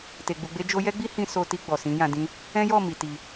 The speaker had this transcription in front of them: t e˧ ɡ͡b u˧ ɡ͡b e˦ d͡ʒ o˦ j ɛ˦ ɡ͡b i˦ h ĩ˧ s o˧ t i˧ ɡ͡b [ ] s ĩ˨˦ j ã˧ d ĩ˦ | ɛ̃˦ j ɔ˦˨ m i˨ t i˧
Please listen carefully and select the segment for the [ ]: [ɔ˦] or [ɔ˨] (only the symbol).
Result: ɔ˨